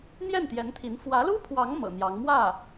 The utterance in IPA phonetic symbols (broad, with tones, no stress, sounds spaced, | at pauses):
n̪ j ɛ˥˩ n t̪ j ɛ˧˥ n t̪ʰ i˧˥ n f w ä˧˥ l u˥ pʰ w ɑ˧˥ ŋ m ɤ̰˨˩ n̪ j ɑ˧˥ ŋ m w ä˥˩